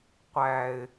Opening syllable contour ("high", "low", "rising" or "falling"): low